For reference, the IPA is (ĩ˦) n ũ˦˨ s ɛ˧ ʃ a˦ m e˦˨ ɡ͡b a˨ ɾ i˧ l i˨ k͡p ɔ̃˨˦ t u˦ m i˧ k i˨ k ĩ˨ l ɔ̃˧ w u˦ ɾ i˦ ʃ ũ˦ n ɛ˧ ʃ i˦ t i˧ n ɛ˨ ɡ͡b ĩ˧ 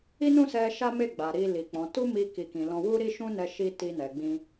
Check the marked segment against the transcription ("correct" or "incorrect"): incorrect